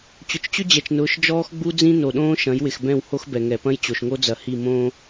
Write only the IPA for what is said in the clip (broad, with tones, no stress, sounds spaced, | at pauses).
t͡ɕ ʊ˨ t͡ʃ t͡ɕ ʏ˦ d͡ʑ ɛ˨ t͡ʃ n ʊː˨˦ ʃ d͡ʒ ɔː˦ x ɡ͡b u˦ d͡z ĩ˦ n o˨ ɗ õː˦ ʃ ɐ̃˨˦ j w ɪ˨ x b ɛ̃˦˨ w h o˦ x b ɛ˨ ŋ ɛ˨ p ɐ̃˦ j t͡ɕ o˨ ʃ ŋ o˦ d͡z ɐ˨ h i˦˨ m õː˦